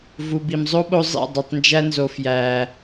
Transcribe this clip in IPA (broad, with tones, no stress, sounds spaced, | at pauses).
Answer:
v u˨ b i˨ m zˤ o˦ ɓ o˧ zˤ ḭ˦˨ dˤ e˨ tˤ n d͡ʒ æ˧ n z o˨ f j æ˨